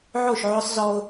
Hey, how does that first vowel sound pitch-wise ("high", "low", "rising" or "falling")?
falling